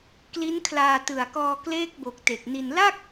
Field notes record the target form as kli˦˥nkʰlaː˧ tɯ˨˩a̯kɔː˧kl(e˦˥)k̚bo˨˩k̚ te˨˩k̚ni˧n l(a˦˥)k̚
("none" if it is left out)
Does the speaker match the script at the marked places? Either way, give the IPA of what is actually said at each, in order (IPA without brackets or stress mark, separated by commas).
eː˦˥, a˥˩